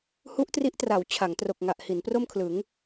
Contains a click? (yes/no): no